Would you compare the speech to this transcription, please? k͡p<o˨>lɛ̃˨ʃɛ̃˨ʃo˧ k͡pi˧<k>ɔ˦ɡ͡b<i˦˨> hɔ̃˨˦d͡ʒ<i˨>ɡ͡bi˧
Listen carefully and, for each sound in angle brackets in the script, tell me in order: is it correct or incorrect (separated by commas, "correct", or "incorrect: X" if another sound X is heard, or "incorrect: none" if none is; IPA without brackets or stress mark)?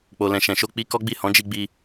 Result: correct, correct, correct, incorrect: i˧